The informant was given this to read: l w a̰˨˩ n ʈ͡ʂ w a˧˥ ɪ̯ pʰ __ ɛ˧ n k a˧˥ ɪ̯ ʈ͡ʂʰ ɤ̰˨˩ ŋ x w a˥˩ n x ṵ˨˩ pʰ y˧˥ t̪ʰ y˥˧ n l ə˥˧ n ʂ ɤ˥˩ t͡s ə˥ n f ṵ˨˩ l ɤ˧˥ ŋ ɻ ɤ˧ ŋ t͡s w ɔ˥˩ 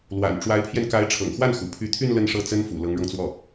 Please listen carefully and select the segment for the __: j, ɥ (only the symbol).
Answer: j